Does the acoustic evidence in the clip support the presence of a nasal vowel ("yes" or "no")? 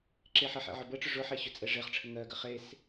no